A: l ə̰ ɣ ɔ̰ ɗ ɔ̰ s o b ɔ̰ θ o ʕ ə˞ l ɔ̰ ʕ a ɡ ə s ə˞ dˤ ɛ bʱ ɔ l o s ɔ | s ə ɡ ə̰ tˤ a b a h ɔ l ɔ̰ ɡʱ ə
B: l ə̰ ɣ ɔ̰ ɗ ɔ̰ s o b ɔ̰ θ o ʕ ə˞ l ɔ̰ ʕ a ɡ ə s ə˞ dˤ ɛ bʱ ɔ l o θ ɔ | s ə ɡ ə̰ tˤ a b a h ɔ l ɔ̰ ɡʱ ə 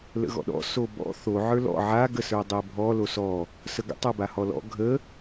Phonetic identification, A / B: A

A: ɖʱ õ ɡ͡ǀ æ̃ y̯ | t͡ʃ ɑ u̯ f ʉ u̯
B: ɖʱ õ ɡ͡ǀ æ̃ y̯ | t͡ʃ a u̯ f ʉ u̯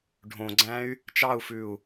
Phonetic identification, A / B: A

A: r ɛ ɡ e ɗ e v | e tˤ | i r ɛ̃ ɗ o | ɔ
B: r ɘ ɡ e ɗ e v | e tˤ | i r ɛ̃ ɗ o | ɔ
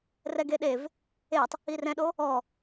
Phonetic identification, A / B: A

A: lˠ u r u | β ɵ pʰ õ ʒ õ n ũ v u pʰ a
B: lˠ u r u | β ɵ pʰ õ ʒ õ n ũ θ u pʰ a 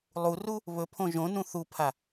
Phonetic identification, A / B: B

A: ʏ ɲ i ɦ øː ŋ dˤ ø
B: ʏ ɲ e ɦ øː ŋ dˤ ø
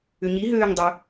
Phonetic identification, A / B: A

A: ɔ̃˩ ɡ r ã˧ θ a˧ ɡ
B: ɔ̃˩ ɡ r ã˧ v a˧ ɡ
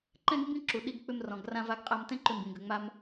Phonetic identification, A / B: B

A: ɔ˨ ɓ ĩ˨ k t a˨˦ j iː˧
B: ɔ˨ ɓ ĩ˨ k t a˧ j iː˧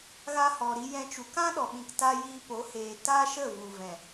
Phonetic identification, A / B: B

